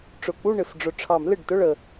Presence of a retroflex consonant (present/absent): present